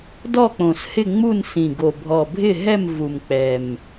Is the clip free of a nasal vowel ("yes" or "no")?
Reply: no